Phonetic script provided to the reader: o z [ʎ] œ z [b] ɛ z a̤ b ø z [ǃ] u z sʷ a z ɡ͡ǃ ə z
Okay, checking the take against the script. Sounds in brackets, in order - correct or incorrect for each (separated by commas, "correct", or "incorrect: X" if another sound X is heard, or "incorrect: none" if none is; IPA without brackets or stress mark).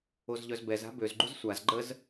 correct, correct, incorrect: ɡ͡ǃ